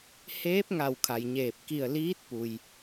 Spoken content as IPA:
h eː˧˥ p̚ ŋ a˧˩ w kʰ a˩ j ɲ eː˧˩ p̚ k i˧˩ ə̯ l iː˧˥ t̚ p u˩ j

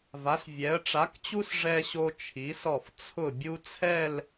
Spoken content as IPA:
v a˩˧ s vʲ ɛ˩˧ ə̯ ʈ͡ʂ a˩˧ k t͡ɕ u˧ s ʐ ɛ˧ ɕ o˧ t͡ʃʰ i˩˧ s ɔ˧˩ f t͡sʰ ʊ˧˩ bʲ u˧ t͡sʰ ɛ˥˧ l

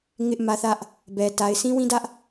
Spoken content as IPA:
ŋ ɪ˦ ʔ m ä˦ θ ä˦ ʔ | b ɛ˦ t a˦ ɪ̯ s ĩ˦ w ĩ˦ d ä˦ ʔ

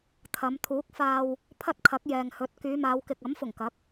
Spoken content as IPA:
t̪ʰ ɐ˨˧ m t̪ʰ uː˨˥ k̚ f aː˧ w | pʰ ɐ˥ t̚ kʰ ɐ˨˥ k̚ j ɛː˨ ŋ h ɵ˨˥ t̚ k yː˨˧ m aː˨˧ w k ɪ˨ k̚ ɐ˨˥ m f ʊ˨˩ ŋ k ɐ˨˥ k̚

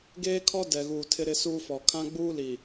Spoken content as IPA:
ɡ eː˦ kʰ ɔ˦ d ɛ˨ ɣ uː˨ tʰ ɪ˦ ɾ ɪ˦ s uː˦ f ɔ˨ kʰ ã˦ ɡ͡b uː˦ l i˨

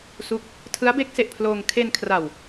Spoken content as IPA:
s u˦˥ k̚ | tʰ ɯ˦˥ a̯ b e˦˥ k̚ s e˨˩ ʔ pʰ l oː˧ ŋ kʰ e˧ n kʰ r a˨˩ w

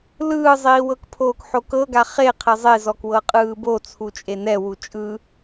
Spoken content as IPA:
l ɯː zˤ iː w ɤ k pʰ oː k ħ o k ɤ ɡ a χ e qʰ e zˤ e z ɔ k w ɤ qʼ ɯː b o t͡sʰ u t͡ʃʼ e n ɛ w u t͡ʃʼ ɯ

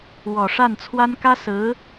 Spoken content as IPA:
w ɔ˨˩ ʂ a˥˩ n t͡sʰ w a˥ n k ä˥ s ɹ̩˧˥

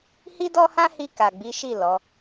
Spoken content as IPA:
h i˦ d ɔ˦ h ã˦ h i˧ k a˨ ɡ͡b i˨˦ ʃ i˦˨ l ɔ˨˦

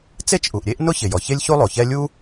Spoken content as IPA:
t͡s e˥ t͡ʃ ʔ u˩ ʔ ɾʲ e˥ ʔ n ʊ˥ ç ɪ˩ j ɔ˩ ç e˥ lʲ ç u˥ lˠ o˩ ç ɛ˥ lʲ u˥

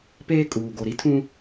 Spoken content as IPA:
p eː˦ kʼ uː˨ ɡ o˨ ɾ i˦ tʰ ũ˦

